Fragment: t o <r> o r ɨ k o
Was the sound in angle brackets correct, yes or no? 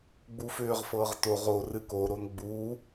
no